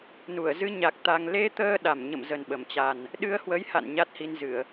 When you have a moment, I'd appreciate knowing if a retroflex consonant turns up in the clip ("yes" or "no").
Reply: no